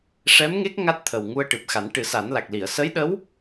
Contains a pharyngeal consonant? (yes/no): no